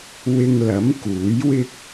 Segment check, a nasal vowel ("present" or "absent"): absent